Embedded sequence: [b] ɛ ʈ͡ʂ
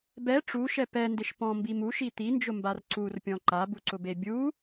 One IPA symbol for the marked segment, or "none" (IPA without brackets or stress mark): b